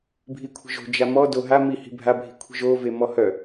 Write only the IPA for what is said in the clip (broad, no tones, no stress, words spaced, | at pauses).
bʱikʷʰi̤ʒo̤ d͡ʒamɔ doɦa mihi̤ bʱabʱi̤ kʷʰi̤ʒo vemɔhœ